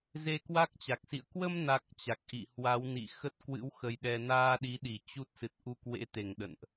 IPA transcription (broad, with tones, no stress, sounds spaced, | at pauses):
z e˧ k w a˦˥ k̚ t͡ɕ a˨˩ k̚ s ḭ˧˨ ə̯ k w ə˧ m n a˨˩ k̚ t͡ɕ a˨˩ k̚ ʔ ḭ˧˨ h w a˨˦ w n ḭ˧˨ x ə˦˥ t̚ k w ɨ̰˧˥ w x ə˧ j ɗ ɛ˧ n aː˧ ɗ i˨˦ ɗ i˧˩ t͡ɕ u˦˥ t̚ s ɨ˨˩ t̚ ʔ u˧ k w ḛ˧˥ t̪ e˧˩ ŋ ɗ ə̰˧˨ n ʔ